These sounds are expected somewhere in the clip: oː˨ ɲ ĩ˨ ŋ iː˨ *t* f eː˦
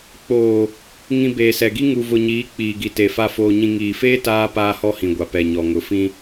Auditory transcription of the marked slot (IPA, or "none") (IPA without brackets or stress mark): none